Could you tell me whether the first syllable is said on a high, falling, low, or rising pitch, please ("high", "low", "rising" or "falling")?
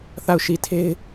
falling